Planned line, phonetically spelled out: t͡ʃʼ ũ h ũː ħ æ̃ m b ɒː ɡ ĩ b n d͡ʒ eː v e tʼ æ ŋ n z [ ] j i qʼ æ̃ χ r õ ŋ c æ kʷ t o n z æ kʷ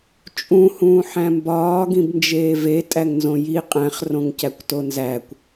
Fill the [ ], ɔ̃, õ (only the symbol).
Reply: õ